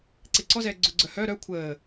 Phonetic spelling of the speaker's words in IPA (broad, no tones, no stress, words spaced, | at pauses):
ǀeǀɔzɛː ɡ͡ǀʊɡ͡ǀœ hœ ɾœ kʷʰəː